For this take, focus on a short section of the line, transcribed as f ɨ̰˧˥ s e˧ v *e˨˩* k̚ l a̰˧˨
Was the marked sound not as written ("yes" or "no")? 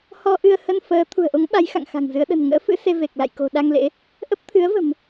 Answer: no